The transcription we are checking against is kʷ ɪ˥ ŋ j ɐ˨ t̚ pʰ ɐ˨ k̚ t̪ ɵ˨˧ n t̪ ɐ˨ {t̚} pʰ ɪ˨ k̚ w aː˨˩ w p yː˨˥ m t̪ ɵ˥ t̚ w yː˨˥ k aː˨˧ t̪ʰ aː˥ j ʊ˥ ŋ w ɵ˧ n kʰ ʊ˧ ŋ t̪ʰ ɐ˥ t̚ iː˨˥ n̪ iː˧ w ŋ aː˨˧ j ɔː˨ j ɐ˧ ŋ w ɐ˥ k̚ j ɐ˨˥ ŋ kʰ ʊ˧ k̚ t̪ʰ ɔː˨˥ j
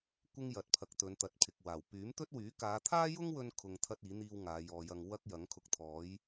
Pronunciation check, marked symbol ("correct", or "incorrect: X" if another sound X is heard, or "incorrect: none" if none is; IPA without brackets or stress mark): correct